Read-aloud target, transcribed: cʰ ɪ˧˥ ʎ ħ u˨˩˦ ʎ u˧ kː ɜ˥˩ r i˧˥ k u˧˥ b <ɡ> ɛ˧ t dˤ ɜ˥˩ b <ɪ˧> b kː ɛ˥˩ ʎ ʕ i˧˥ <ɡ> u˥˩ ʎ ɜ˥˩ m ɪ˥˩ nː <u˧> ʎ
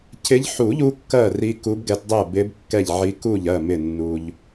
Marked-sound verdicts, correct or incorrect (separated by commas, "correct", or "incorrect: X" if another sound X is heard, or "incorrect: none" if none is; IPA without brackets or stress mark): correct, incorrect: ɪ˧˥, incorrect: k, correct